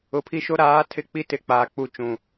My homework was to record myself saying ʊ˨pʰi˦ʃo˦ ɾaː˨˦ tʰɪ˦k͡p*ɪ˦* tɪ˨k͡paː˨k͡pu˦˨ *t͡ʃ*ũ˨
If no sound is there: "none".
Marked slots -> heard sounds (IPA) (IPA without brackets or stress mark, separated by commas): i˦, t͡ʃ